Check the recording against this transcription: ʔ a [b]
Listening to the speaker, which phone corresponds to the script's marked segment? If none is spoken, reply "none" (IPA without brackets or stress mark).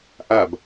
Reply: b